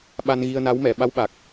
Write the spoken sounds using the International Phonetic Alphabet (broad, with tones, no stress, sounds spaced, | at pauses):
ɓ a˧ n ɣ i˧ ə̯ n a˧˥ w m ɛ˨˩˨ ɓ a˧˥ w ɓ a˨˩ k̚